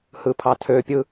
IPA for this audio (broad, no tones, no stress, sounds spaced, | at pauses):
h ɯ pʰ ɑ tʰ ø pʲ ɯ